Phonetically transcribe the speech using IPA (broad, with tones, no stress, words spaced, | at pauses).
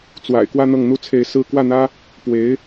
t͡swa̰˨˩ɪ̯kwä˥˧ n̪ɤ˥˩ŋn̪u˥t͡sʰe˧˥ɪ̯sɹ̩˥ kwä˥˩n̪ä˥ | pwe˧˥ɪ̯